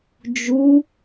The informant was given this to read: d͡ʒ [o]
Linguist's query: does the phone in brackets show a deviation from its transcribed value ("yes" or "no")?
yes